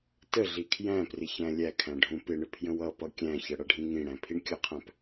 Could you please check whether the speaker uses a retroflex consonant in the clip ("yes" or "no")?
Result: yes